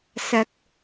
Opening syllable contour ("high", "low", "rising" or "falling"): low